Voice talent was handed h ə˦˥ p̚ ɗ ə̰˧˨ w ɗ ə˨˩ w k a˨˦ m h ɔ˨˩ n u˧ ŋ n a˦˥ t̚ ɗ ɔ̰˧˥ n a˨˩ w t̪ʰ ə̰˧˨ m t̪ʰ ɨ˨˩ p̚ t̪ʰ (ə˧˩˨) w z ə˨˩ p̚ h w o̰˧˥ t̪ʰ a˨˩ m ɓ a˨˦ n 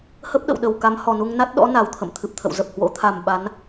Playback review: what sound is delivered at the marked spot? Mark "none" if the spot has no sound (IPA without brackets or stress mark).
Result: ə̰˧˨